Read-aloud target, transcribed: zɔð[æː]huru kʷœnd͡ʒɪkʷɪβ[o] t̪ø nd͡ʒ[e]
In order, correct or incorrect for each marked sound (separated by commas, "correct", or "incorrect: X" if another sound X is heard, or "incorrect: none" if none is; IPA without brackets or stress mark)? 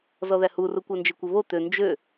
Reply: incorrect: æ, correct, incorrect: ø